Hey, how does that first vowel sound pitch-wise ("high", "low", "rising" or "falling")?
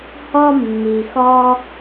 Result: high